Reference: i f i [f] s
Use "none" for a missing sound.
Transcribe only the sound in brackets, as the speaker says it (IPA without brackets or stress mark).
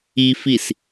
none